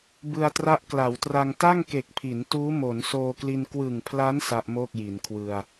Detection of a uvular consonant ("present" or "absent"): absent